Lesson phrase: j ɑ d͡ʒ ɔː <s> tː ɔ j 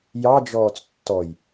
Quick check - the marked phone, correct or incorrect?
incorrect